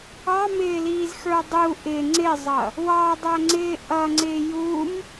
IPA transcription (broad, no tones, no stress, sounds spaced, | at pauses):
ɑ m ɪː l iː z x ə˞ dˤ u ʔ ɪ ŋ͡ǀ ɪ zˤ ʌ | w ɑ dˤ æ ŋ͡ǀ ɪː ʔ ʌ ŋ͡ǀ ɪː j u m